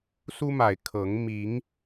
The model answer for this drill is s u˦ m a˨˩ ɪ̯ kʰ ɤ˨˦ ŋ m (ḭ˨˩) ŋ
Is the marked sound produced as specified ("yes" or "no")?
no